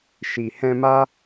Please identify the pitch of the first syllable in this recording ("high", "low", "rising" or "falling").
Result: low